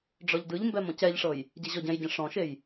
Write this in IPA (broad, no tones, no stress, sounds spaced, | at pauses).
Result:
ɖ͡ʐ ɔ ʎ d ɯ ʎ m b ɛ m ɔ̃ c ɛ ʎ ʂ ɤ j | ɟ e ʑ ɔ ɟ ɛ̃ j ɟ ɛ̃ ʂ ɔ̃ ʃ e j